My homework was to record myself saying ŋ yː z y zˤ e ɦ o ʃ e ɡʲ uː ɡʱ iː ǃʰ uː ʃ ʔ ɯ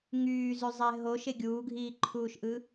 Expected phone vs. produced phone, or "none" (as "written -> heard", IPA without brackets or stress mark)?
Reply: none